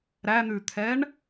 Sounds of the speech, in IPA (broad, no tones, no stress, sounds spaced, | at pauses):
ɾ æ n̪ ʉ t̪ʰ ɛ ɳ